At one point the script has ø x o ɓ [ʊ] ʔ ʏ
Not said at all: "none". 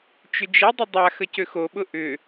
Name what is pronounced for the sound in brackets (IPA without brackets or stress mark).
ʊ